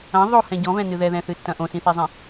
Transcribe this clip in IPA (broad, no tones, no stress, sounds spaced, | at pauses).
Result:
ɐ̃ ðˤ o h ɛ̃ ɟ ɔ̃ v ɛ̃ n ɨ ð ɛ ð ɛ̃ θ ɨ tː ɐ̃ ʔ õ s ĩ θ e zˤ ĩ